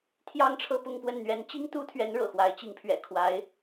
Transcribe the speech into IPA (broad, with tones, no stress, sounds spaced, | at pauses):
t̪ʰ j ɑ˥˧ ŋ ʈ͡ʂʰ ɤ˥˧ p ʊ˥˧ ŋ p w ə˥˩ n n̪ ɥ ɛ˧˥ n t͡ɕ i˥ ŋ t̪ u˥ t̪ʰ ɥ ɛ˧˥ n ɻ ɤ̰˨˩ x w a˧˥ ɪ̯ t͡ɕ i˧˥ ŋ pʰ ɥ ɛ̰˨˩ kʰ w a˧˥ ɪ̯